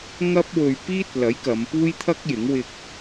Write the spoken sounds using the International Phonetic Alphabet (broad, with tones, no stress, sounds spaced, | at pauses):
ŋ ɐ˥ p̚ w ɵ˧ ɥ p iː˥ t̚ l ɐ˨˥ j k ɐ˨˧ m p uː˥ j t̪ʰ ɐ˥ k̚ j ɪ˨˥ ŋ w ɪ˧ k̚